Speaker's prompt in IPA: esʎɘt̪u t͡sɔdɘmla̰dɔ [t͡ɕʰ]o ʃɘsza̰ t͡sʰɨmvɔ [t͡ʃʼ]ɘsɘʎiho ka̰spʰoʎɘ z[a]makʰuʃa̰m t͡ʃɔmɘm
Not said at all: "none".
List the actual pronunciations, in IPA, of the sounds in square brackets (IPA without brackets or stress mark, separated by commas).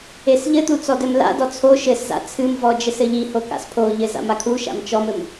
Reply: t͡sʰ, d͡ʒ, a̰